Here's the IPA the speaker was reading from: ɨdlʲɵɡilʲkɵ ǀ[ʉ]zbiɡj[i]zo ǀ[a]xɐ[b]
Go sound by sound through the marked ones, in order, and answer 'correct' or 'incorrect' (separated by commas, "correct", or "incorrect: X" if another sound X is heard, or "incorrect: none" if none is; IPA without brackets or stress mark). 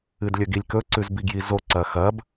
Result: correct, correct, incorrect: ɐ, correct